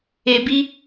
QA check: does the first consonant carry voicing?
yes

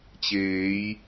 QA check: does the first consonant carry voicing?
no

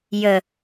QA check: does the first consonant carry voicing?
yes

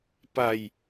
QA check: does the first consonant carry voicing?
no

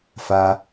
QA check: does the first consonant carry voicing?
no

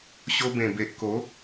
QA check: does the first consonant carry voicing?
no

